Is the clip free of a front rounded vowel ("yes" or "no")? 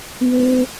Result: no